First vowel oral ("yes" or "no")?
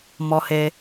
yes